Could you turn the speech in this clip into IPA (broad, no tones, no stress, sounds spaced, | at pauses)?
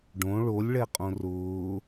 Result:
ɖ õ ɭ o lʲ ɭ ɛ qʼ õ r ʊː